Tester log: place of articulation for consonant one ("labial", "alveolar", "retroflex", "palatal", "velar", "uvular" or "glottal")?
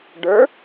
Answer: retroflex